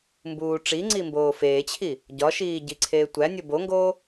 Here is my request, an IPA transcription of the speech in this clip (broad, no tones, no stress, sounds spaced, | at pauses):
m b uː ʈ͡ʂ i ŋ͡ǀ i m b oː f eː t͡ɕʰ i | ɟ ɒ ʃ iː ɟ i ǀʰ eː tʷ æ nʲ o b o ŋ ɡ oː